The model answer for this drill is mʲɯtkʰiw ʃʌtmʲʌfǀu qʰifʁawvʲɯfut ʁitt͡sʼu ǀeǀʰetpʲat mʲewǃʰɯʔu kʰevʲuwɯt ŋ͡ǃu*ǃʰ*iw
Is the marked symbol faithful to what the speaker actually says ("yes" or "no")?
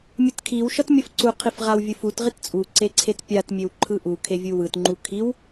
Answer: no